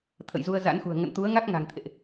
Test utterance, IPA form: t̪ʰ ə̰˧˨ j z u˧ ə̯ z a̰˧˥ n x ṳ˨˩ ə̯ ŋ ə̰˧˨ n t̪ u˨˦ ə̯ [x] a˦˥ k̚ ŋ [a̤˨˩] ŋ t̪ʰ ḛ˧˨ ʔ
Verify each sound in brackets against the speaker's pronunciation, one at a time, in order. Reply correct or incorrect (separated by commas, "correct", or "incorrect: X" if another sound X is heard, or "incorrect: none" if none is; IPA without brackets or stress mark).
incorrect: ŋ, correct